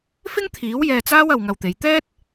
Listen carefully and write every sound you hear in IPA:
f ɪ˥ ŋ t̪ʰ iː˨˥ w j ɛː˧ t͡s aː˥ w ɐ˧ w ŋ ɐ˧ w t̪ e˨˧ j t̪ ɛː˥ t̚

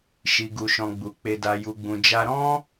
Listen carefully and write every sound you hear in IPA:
ʃ i˧ ɡ u˧ ʃ ɔ̃˧ ɡ͡b u˨ k͡p e˧ d a˧ j u˧ ɡ͡b ũ˧ d͡ʒ a˦ ɾ ɔ̃˦

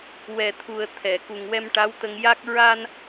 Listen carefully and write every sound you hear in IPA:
w ɛ˨˩ t̪ʰ u˨˩ ə̯ t̪ʰ ɛ˨˩˨ k u˨˩ ŋ w ɛ˧ m ʈ a˧˥ w t̪ ə˧ ŋ j a˦˥ k̚ ɹ a˧ n

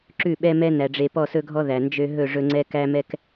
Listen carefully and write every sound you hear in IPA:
ǁ ʉ˦˨ ɓ ɛ˦ m ɛ˦ n æ˨ ɖ͡ʐ e˨ p ɔ˦˨ s ɵ˦ ɡʱ ɔ˦ ð æ˨ n d͡ʒ ø˦ ɦ ɵ˦˨ ʐ ɵ˦ ŋ͡ǀ ɛ˦ k æ˦ m ɛ˦ k

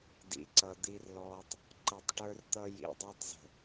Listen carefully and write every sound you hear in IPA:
d ḭ˨ ǀ ʌ˨ d̪ i˦ r l ɔː˦ tˤ | ǃ ʌ˨ tˤ ʈ ə˞˦ r t̪ ʌ˦ j ḭ˨ dˤ ə˞˦ tˤ z ə̤˨

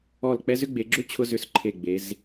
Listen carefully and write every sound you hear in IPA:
ɔ˧˩ l k͡p ɛ˦ z ʏ˦ ɡ͡b e˩˧ ɡ͡ǁ ʏ˦ t͡ɕʰ ʊ˦ z ʏ˧˩ s ǃʰ e˧˩ ɡ͡b e˩˧ z

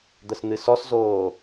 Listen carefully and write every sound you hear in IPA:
d̪ ə s n̪ ɨ s ɔ s z oː

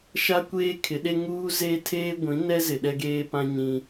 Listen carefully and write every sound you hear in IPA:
ʃ a˦ kʷ eː˦ kʰ ɪ˨˦ ɗ e˦ ŋ uː˦ z eː˦ tʰ eː˦ ɡʷ ĩ˨˦ n ɛ˦ z ɪ˨ ɗ ɛ˦ ɡ eː˦ p ã˦ ɲ ĩ˦

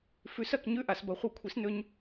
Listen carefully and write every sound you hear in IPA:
f ʉ˨˥ s ɐ˥˨ k ɲ ʉ˥˨ ʔ a˩˧ s b ɐ˨˥ χʷ ɨ˧˩˧ kʷʰ i˨˥ s n ɵ˦˥ ɲ

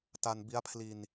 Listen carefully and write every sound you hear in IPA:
t a˧ n b i˦˥ a̯ pʰ l i˧ n

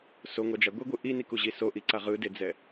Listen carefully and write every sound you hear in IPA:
s o ŋʷ a d͡ʒ a ɡʷ e ɡʷ ɯ ʔ i n i k u ʑ i s o ʔ i ǀ a ʁ ɯ d e d͡z ɛ

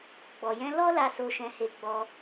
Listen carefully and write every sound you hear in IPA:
ɡ͡b ɔ˨ j ɛ̃˧ l ɔ˦ l a˧ s o˧ ʃ ɛ̃˧ h e˧ ɡ͡b ɔ˧

